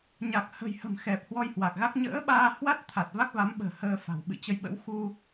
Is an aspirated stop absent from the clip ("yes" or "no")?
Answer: no